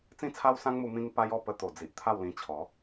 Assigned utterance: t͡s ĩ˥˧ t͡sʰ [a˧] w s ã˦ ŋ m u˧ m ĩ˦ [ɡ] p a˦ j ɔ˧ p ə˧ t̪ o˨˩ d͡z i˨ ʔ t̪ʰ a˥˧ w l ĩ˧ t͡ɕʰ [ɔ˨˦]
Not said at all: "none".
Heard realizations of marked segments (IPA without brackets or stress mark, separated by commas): a˦, ŋ, ɔ˨˦